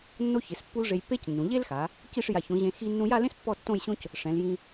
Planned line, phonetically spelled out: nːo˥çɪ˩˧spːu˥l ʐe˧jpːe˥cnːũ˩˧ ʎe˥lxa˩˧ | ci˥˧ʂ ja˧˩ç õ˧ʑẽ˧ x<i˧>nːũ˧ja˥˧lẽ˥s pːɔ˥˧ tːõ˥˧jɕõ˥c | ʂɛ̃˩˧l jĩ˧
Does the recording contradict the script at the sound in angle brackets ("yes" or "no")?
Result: no